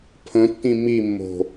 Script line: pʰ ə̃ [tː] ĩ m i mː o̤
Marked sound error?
no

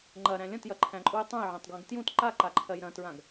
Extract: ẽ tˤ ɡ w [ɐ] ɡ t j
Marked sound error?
yes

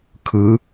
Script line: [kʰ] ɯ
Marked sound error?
no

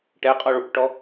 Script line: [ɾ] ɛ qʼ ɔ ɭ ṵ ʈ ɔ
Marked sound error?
yes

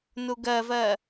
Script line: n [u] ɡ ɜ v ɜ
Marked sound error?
no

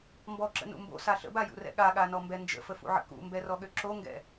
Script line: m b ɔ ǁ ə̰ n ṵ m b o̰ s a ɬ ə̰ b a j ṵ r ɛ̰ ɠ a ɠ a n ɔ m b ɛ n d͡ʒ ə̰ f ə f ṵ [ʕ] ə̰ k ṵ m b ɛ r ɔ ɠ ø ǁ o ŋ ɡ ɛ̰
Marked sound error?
no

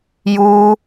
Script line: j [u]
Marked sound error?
no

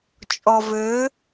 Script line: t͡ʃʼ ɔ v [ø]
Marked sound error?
no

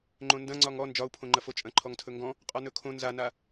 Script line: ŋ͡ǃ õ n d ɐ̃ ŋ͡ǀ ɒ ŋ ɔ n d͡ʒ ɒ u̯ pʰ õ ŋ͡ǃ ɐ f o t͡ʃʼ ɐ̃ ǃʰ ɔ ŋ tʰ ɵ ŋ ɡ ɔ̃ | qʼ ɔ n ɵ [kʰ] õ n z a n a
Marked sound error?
no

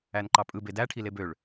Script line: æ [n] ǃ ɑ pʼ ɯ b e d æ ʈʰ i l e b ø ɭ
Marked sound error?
no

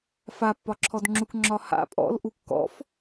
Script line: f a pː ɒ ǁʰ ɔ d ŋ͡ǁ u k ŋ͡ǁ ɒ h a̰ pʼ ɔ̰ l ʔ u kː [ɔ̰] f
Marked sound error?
no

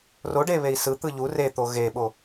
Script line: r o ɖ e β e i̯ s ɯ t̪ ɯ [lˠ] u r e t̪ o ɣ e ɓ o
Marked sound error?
yes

